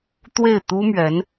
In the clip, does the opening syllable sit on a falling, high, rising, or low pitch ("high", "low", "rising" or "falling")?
falling